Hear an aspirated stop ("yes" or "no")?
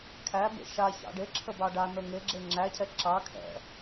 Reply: yes